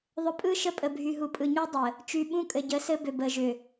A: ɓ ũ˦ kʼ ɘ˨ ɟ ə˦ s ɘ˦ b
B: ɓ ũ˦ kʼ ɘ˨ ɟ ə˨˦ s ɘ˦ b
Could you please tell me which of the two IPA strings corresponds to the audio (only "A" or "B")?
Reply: B